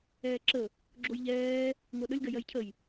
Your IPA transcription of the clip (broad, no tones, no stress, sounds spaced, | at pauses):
ɛː ǁ ə | ɡ͡ǁ o j ʎ ɛː | ŋ ɤ ɗ ə lʲ ɡ ɜ j ɜ j cʰ ə j